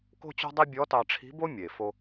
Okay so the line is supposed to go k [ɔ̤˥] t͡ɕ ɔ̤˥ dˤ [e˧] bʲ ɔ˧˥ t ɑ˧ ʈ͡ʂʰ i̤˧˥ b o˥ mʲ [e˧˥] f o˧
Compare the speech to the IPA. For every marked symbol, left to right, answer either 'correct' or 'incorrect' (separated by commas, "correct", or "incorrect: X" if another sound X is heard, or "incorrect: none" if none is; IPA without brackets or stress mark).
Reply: incorrect: o̤˥, incorrect: e˥, incorrect: e˩